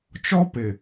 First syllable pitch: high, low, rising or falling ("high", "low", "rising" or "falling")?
high